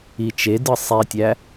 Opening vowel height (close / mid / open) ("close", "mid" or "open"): close